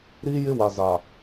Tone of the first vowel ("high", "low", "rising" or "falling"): high